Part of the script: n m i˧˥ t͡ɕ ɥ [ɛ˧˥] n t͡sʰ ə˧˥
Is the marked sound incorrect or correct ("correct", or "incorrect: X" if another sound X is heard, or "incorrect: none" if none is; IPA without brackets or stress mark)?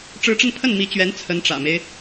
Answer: correct